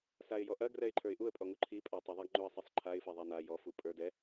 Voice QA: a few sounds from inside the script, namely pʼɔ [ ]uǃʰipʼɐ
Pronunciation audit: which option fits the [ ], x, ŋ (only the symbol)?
ŋ